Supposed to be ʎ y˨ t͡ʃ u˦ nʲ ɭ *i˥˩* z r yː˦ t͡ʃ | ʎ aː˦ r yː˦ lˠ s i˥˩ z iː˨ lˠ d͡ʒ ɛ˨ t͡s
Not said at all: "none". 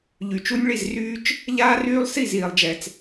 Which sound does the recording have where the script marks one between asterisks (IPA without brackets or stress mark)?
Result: i˥˩